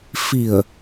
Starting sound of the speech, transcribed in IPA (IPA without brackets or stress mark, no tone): f